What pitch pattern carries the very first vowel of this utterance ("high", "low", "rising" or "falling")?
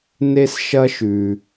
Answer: high